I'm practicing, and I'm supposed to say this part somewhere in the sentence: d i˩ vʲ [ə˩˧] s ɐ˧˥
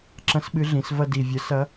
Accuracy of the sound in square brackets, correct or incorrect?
correct